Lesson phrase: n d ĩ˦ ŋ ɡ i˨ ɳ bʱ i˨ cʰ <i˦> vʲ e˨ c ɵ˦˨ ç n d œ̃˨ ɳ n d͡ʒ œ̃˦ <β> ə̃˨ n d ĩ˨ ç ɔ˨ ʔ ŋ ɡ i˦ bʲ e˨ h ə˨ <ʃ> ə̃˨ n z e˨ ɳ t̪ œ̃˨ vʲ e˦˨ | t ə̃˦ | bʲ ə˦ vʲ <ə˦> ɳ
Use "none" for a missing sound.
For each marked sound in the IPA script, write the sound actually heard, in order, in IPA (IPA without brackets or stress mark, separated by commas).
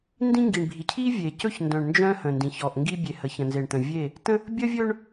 i˦, h, ç, ɵ˦